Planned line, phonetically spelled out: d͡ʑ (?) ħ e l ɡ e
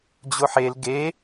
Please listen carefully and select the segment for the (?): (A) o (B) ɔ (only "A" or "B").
A